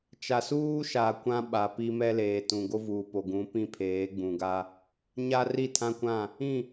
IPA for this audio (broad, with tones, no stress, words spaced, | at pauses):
t͡ʃa˨suː˦ʃa˨ kʷã˦ɓa˨pi˦ mɛ˦leː˨tũ˨ ɡo˦vuː˨po˨ɡũ˨˦ pĩ˦pʰeː˨˦ɡ͡bũ˨ɡa˦ | ɲa˦ri˦˨tʰã˦kʷã˦˨ | ĩ˦˨